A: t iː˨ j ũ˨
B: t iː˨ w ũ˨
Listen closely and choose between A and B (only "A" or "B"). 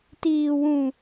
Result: B